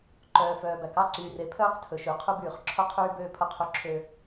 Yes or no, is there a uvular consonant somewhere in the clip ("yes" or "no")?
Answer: yes